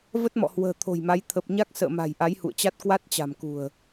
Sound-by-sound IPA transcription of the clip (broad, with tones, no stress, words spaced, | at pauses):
və˦˥t̚mɔ̰˧˨hwə̤ː˨˩ t̪ʰo̤˨˩jma˨˦j t̪ʰə˨˩p̚ɲa˦˥k̚ sə̰ː˧˨ma̤˨˩j ʔa˨˦jhṵ˧˨ə̯t͡ɕa˦˥t̚ kwa˦˥t̚t͡ɕa̤˨˩mkṳ˨˩ə̯